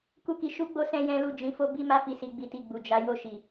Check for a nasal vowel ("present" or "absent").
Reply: present